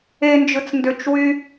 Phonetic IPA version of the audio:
end͡ʒɯt͡s ndøt͡ʃwy

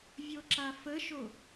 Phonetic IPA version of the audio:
vʲoǁafəʃo

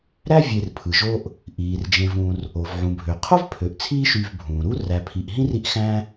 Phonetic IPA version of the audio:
ɾæ˥ vʲe˨rpʰɯ˩ʒo˦ʔ | ʔiː˩rd͡ʒẽ˨v ũ˨r | o˩v ʕũ˩bʱø˩ qʰo˥v pʰø˩ʔt͡sʰiː˦ʃy˨v bʱũː˩ɾu˥ ræ˨pʰi˨ʔɦĩ˥ri˦ʔ xæ̃˥

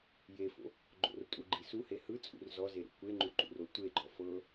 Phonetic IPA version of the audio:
jefo̰ | ɡ͡ǃo̰rtʼu ɡ͡ǃisuhe hɯ t͡sʼṵrzɔze ɾṵkʷeŋ͡ǃu ǃṵrotʷeɡ͡ǃɔ fɤ

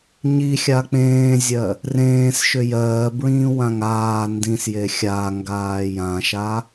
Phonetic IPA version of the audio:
ɲixʲa k͡pẽːzʲɜ | rẽːsʃʏ jɜːbɹĩːwãŋ aː ndĩsje xʲaŋɡaː jãʃa

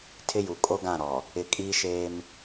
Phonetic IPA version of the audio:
tʰɪ˦ju˨ kʼo˦ɡã˦˨ ɾɔ˨ | ɪ˨kʼiː˦ʃeː˦m

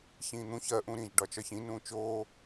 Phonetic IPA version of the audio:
çĩːn̪ũç ɜ ʔũɾĩʒ ɖɒt͡ʃɒçĩ nũːt͡ʃoː

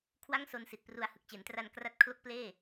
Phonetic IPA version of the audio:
kʰwa˥˩ŋ so˧nsi˨˩t̚pru˧a̯ hɯ˨˩k̚t͡ɕe˩˦ntra˧n kra˦˥t̚kʰlo˥˩k̚pleː˥˩

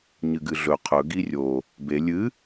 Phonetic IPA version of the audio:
ɲɨɡɨɮɵ qʰɵ ɡirʲo | be lʲɨ

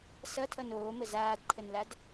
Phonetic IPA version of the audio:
sʌtʰʌn oːmə zaːdǃʰənlad

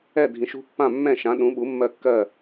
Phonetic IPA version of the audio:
ɛ˥˩dʱĩ˩˥ʃṳ˥pːã˥˩ mːɛ̃˥˩ʃã˩˥ ɗũ˩˥ɓu˩˥ mːɜ˥˩kːɜ˥˩

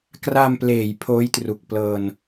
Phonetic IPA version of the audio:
kra˧mpleː˩˦j pʰoː˦˥jtru˨˩k̚ plɤː˧n

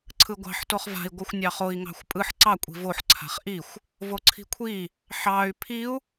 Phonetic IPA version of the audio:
ǀʰɯɡʷɑ̤ħ toχva̤i̯ ɡʷɯxʷnʲɑχoi̯ ŋɑ̤xʷpʼɯħ ǀɑ kʷʼi̤voħ ǀʰa̤χʔixʷ | voǀʰi̤kʷʰi | ħɑy̯ pʰiu̯

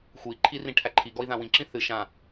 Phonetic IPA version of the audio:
xui̯ǃʰirĩʈʰæ ǃʰiɡɔi̯ðã wĩǁĩ θɨ ʃã

